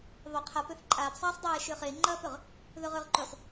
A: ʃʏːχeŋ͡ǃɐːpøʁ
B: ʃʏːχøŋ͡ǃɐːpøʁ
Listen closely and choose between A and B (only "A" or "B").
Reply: A